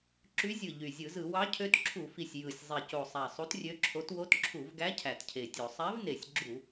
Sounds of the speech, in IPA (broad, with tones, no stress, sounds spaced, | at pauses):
ǁ y˧˥ zʲ ɯ˨˩ ʎ y˨˩ zʲ ɯ˧˩˧ z ɯ˧˩˧ w ɑ˧˥ cʰ ø˧˥ t ǁʰ u˧˩˧ f i˨˩ sʲ j ɯ˨˩ sʲ zˤ i˨˩ c o˨˩ sˤ æ˨˩ sˤ u˧˥ t rʲ ø˧˥ ǁʰ o˧˥ t w o˧˥ t ǁʰ u˧˩˧ v ɡ æ˧˥ cʰ æ˨˩ t cʰ e˨˩ tʲ o˧˩˧ sˤ æ˧˥ v n e˨˩ sʲ ɡ͡ǁ u˧˩˧